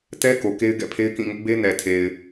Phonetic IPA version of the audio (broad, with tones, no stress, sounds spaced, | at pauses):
t ɛ˦ k o˨ k e˦ ɪ̯ ɡ ɛ̰˦˨ pʰ e˦ ɪ̯ k ĩ˦˨ ŋ ʊ˦ ʔ b e˦ n ɛ˨ tʰ e˨ ɪ̯